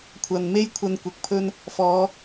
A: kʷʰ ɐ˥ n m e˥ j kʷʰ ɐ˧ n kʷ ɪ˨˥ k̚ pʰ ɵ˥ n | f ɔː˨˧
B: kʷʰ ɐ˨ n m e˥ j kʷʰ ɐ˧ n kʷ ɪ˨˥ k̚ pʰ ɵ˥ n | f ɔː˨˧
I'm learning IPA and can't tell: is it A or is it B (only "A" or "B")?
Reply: B